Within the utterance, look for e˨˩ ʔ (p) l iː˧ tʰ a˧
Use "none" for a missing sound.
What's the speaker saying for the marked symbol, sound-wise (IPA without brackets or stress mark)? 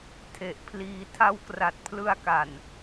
pʰ